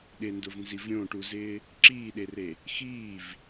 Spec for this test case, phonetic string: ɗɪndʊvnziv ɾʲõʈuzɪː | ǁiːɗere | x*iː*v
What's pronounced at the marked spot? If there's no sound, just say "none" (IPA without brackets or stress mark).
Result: iː